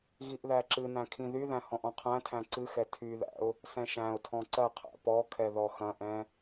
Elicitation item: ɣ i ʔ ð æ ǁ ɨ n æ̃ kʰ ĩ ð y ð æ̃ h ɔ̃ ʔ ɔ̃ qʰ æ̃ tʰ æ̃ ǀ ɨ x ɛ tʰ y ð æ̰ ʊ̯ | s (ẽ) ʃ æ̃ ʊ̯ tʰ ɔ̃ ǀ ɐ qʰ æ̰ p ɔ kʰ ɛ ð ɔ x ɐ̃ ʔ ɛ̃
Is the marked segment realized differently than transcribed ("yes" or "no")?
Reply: yes